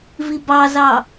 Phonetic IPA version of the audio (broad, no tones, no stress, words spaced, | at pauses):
vibɑzɑ